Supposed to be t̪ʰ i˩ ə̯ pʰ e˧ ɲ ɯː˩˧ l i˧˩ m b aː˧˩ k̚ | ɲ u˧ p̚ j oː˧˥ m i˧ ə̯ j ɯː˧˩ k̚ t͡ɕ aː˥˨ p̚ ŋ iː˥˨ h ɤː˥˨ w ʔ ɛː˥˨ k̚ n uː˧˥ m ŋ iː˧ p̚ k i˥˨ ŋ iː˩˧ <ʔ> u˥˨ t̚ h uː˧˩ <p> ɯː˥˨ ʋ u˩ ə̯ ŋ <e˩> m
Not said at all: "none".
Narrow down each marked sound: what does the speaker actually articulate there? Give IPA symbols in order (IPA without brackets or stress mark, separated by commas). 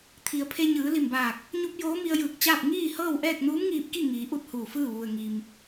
ʔ, f, i˩